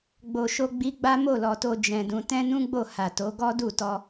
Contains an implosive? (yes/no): no